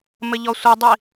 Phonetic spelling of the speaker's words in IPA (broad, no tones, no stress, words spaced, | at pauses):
mɘʎɔsʷidˤi